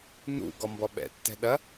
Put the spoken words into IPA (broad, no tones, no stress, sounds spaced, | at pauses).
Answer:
n ṵ ɡ ɔ m b ɔ ɓ ɛ̰ tː ɛ̤ ɗ ɐ